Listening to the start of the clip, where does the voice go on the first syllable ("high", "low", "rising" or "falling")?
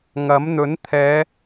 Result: rising